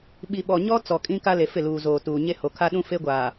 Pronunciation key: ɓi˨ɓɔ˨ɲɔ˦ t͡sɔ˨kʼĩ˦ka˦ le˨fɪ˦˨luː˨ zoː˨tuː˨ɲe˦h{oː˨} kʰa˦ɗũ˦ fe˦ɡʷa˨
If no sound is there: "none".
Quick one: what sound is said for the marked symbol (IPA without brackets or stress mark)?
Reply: o˨